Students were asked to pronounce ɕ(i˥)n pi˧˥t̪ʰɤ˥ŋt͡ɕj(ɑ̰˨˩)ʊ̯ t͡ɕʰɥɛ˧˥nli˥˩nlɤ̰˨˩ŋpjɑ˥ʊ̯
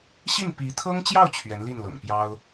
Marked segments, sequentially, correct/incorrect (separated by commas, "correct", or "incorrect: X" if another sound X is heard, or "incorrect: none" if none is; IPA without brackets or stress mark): incorrect: i˥˩, incorrect: ɑ˥˩